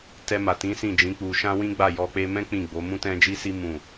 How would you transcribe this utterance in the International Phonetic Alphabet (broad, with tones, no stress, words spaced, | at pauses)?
tɛ˧ma˨tĩ˨˦ sĩ˦˨d͡ʒĩ˨˦k͡pu˧ ʃã˦wĩ˦ɡ͡ba˦˨ jɔ˧k͡pe˦ mɛ̃˦ k͡pĩ˦˨ɡ͡bo˨˦ mũ˦tɛ̃˦d͡ʒi˦si˦ mũ˦˨